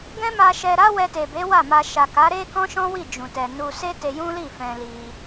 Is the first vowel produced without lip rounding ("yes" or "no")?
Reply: yes